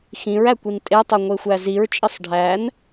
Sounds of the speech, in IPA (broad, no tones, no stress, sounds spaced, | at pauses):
x ĩ ɹ æ kʷ i n tʼ e tˤ o ŋʷ e xʷ æ z i ɹ t͡ʃʼ i sˤ ɖʱ æ n